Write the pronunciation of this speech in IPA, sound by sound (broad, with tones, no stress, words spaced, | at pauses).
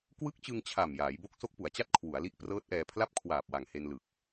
kwɯ˦˥k̚t͡ɕɯ˧ŋ t͡ɕʰa˨˩mjaː˩˦jbo˦˥k̚ so˦˥k̚pu˩˦a̯t͡ɕa˥˩t̚ kʰwu˩˦a̯li˦˥ʔprɤː˦˥t̚ʔɛː˧ pʰla˥˩p̚kʰwaː˨˩p̚wa˨˩ŋ he˧n lɯ˨˩k̚